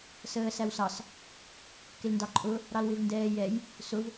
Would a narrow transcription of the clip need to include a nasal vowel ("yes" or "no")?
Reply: no